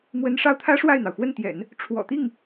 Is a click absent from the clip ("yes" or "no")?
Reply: yes